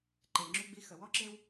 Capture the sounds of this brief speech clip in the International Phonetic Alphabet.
ǃ e˨ ŋ͡ǁ ʉ˦ ɡ͡b i˦ x ə˨ w ɔ˦ ǁ e˦ w

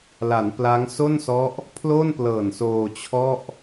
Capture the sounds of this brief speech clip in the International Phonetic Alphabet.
l a˩˦ n p l a˦˥ ŋ s o˥˩ n s ɔ˦˥ ʔ | pʰ l o˥˩ n p l ɤː˨˩ n s oː˧ t͡ɕʰ ɔ˥˩ ʔ

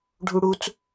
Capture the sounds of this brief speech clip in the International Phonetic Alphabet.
ɖʱ u ɽ u t͡s

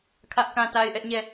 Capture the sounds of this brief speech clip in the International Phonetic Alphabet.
kʰ ä˦ ʔ k ã˦ t a˦ ɪ̯ ʔ ɛ˦ ʔ ɲ ɛ˦˨

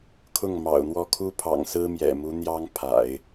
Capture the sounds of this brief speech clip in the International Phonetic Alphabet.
kʰ ʊ˥˩ ŋ m ɑ̰˨˩ ʊ̯ n̪ w ɔ˥˩ kʰ u˥ pʰ ɑ̰˨˩ ŋ s ɹ̩˥ m j ɛ̰˨˩ m u˧˥ n̪ j ɑ˥ ŋ pʰ a̰˨˩˦ ɪ̯

